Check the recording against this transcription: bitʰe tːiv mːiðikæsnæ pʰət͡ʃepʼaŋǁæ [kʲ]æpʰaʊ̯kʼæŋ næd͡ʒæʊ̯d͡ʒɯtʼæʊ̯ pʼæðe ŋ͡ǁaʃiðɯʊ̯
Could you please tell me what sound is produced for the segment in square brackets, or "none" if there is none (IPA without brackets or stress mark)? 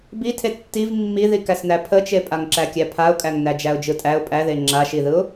kʲ